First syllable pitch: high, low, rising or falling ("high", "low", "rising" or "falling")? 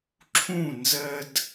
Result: falling